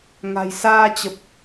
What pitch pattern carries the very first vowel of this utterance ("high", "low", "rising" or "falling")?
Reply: low